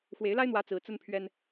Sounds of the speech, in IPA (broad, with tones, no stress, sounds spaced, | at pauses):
x w e˨˦ ɪ̯ l a˦ ɪ̯ n̪ w ä˨˦ t͡s ɹ̩˨˦ t͡s ə˦ n pʰ ɥ ɛ˦ n